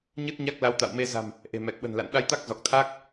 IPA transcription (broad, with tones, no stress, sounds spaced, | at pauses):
ɲ ɨ˦˥ t̚ ɲ a˦˥ k̚ l a˨˦ w t̪ a̰˧˨ w m e˧ z a̤˨˩ m | ʔ e̤˨˩ m ɛ˨˩ k̚ ɓ ə̤˨˩ n l a̰˧˨ n ɗ a˧ j t̪ a˦˥ k̚ z ɔ˨˩ k̚ t̪ʰ a˦˥ k̚